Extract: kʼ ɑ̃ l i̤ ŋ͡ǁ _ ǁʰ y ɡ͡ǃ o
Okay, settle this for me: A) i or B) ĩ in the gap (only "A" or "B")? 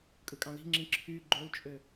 B